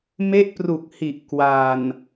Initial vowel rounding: unrounded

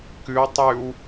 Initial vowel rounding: rounded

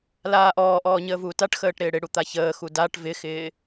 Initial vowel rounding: unrounded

